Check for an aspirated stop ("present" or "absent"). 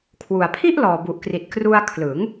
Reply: present